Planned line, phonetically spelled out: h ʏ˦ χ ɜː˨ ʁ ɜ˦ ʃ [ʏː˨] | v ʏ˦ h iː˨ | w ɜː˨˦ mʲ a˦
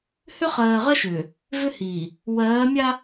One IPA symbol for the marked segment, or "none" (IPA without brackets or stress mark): ʏː˨